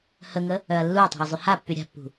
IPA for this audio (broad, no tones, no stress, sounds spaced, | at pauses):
h ə ŋ ə | œ ɐ̯ lː u ɐ̯ tˤ e̤ ɐ̯ zˤ y h a pː y ɾʲ a̤ pː ṳ